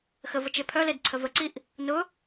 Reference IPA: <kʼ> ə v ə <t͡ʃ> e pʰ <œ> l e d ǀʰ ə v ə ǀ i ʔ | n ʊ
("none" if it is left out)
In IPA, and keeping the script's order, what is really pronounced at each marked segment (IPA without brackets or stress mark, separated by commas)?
x, t͡ʃ, œ